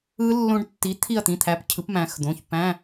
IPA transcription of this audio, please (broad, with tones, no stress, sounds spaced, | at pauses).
ɯ˦˥ lː õ˦˥ ɖ tː i˨˥ t̪ʰ i˦˨ ɐ̯ t̪ ĩ˩˧˩ t̪ʰ æ˨˥ p cʰ ɯ˨˥ p m æ̃˩˧ x d̪ õ˩˧˩ ç p æ̃˧˥˧